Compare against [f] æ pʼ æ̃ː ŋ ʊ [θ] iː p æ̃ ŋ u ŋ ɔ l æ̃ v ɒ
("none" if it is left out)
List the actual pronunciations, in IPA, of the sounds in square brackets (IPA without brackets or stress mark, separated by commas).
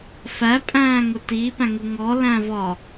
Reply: f, t